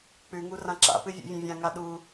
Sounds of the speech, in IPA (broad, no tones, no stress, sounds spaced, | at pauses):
k͡p ʉ ŋ u r ã ǁ a̰ p ɨ vʲ o̰ vʲ ɐ̃ vʲ ã ŋ a ɗ u